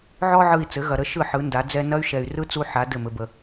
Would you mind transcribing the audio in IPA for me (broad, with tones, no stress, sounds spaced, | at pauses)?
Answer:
ʕ ɔ˧ ʕ ɯ˨ i̯ t͡s ɘ˨˦ ɣ ɐ˨ ɾ ə˦ ʃ ɯ˦˨ ħ ɯ˨˦ n d a˨˦ d͡z ɛ˧ n ɐ˦ y̯ ʃ ɛ˨ y̯ r ɯ˦ t͡s u˦ ħ a˨˦ d ɘ˦˨ m ɘ˧ b ə˧